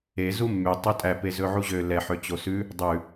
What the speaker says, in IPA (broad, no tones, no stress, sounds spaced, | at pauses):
e z u mː y tˤ o tʼ æ p e z ɵ ʕ u ʑ ø l ɛ ħ ø t͡ɕ o s ʉ | dˤ ʉ